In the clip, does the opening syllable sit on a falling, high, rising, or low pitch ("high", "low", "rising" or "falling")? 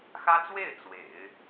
high